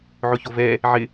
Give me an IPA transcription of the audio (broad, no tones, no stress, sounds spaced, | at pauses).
ʕ ʊ ç o v ɛ | ʕ ɪ